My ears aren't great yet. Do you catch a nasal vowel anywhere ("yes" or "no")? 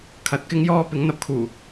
no